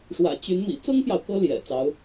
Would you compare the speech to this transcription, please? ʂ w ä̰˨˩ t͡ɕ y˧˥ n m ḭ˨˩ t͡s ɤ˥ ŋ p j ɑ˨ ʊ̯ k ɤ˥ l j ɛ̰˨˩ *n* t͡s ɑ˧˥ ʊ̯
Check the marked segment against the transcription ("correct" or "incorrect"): incorrect